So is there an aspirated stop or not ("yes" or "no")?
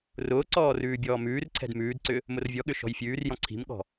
yes